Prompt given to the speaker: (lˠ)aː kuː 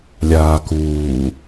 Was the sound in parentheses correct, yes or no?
no